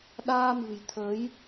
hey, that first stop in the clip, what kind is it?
implosive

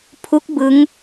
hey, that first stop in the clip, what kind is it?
aspirated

